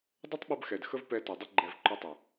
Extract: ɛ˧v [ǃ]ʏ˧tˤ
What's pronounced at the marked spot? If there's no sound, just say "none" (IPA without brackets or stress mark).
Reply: ǃ